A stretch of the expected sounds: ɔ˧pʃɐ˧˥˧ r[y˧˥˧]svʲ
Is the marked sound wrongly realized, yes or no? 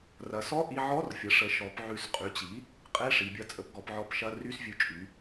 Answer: no